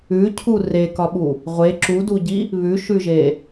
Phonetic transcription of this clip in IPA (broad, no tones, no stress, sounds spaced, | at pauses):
ʉ cʰ u r e k ɒ ɓ u | ʁʷ e ǁ u d u ɟ i | β ʉ ʃ ʉ ʒ e